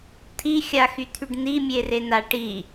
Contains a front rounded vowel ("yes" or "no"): yes